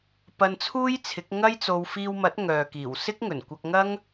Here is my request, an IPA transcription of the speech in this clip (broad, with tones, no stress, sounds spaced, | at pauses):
p ɐ˧ n t͡sʰ uː˥ j t͡sʰ ɪ˨˥ k̚ ŋ ɐ˥ j t͡s o˧ w f iː˧ w m ɐ˨˥ t̚ ŋ œː˨ k iː˨˩ w s ɪ˥ k̚ ŋ ɵ˨˩ n kʷ ɐ˧ k̚ ŋ ɐ˥ ŋ